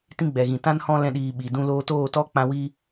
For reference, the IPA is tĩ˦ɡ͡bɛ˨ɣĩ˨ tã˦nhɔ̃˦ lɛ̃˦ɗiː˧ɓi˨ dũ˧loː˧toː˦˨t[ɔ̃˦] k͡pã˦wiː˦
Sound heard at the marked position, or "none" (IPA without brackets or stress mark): ɔ˦